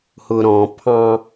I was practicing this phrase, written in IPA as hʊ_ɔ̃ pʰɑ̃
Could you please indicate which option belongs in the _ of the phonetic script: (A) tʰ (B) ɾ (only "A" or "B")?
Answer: B